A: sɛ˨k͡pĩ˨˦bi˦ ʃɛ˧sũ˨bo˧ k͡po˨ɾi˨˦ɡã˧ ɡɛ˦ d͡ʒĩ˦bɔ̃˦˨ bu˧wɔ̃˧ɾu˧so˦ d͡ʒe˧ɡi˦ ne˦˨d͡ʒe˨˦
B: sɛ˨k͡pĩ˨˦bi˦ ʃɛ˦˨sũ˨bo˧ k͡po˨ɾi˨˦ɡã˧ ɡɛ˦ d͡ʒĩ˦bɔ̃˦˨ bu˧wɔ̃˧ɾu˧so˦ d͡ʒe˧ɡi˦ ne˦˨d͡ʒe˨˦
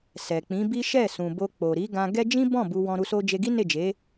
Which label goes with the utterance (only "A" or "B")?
B